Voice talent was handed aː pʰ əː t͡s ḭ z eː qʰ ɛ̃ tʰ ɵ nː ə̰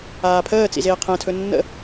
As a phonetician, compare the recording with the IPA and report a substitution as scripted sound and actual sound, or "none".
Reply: none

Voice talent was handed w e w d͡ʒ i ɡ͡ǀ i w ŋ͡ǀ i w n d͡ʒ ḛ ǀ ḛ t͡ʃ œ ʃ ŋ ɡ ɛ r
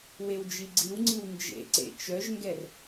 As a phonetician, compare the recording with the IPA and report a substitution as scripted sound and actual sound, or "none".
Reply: ʃ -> ʒ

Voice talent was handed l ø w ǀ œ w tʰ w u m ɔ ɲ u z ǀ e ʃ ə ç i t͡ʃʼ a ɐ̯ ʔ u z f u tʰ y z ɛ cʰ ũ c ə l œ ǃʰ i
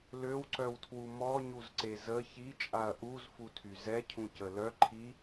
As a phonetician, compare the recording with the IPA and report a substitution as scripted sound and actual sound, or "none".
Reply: ʃ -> z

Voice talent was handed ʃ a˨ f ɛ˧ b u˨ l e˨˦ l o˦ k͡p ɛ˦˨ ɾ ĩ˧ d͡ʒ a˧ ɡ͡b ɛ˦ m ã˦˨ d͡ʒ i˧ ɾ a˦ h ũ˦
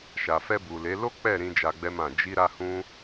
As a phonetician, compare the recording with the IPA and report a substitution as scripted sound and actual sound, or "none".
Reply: none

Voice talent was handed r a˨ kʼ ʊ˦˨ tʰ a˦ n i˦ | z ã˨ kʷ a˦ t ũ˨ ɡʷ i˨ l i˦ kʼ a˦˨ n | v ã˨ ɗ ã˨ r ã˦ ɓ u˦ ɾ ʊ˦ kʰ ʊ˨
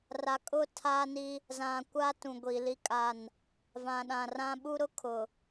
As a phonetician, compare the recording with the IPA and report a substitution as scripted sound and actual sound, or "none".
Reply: none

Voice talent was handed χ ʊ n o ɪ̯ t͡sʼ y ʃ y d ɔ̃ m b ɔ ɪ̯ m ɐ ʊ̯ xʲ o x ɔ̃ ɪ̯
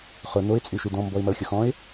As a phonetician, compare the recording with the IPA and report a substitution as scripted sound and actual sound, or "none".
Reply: none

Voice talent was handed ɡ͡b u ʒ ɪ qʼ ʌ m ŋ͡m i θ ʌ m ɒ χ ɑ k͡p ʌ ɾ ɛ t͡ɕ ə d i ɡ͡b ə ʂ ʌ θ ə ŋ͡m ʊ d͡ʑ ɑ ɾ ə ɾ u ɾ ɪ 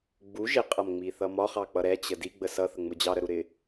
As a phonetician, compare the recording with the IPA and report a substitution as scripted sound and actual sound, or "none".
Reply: ʂ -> s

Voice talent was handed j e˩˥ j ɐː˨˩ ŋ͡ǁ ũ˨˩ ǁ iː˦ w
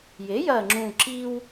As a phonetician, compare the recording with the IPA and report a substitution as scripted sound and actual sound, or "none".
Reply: none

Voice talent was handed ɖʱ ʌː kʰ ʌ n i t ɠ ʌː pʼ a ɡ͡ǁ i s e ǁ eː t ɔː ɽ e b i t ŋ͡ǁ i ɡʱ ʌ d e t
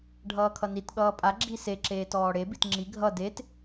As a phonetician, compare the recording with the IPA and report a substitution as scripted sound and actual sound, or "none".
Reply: none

